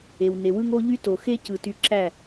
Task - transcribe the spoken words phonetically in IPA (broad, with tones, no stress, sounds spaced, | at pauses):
e˨ w n e˨ w ɯ˦ ŋ o˦ ʎ y˦ t o˨ x e˦ c ɯ˨ t y˧ ǁ æ˦˨